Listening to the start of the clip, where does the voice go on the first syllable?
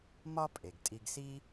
high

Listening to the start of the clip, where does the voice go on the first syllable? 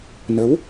rising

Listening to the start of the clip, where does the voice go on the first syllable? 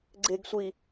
low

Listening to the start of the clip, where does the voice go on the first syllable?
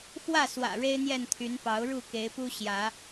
falling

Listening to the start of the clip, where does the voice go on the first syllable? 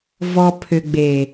low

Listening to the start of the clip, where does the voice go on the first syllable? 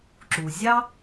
low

